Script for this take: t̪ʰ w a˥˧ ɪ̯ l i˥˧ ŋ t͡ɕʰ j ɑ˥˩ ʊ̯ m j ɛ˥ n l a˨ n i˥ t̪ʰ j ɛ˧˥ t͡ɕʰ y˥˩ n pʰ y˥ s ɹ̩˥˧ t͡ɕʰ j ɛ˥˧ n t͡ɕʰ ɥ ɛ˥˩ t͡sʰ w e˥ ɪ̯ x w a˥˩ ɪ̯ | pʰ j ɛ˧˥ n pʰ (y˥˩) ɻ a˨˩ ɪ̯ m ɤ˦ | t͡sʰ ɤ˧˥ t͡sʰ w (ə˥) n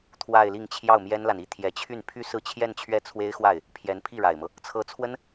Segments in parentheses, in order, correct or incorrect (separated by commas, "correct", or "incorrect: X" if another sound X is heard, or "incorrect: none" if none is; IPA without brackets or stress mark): incorrect: i˥˩, correct